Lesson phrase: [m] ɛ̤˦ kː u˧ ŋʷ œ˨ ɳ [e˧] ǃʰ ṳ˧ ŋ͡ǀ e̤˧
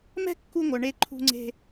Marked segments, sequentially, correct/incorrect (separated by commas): correct, correct